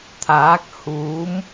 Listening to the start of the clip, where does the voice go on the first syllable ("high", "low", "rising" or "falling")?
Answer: rising